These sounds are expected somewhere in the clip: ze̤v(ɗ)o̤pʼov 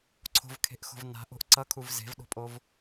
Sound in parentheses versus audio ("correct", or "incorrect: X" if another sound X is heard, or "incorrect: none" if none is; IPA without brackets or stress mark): correct